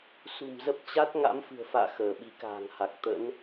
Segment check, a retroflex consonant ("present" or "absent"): absent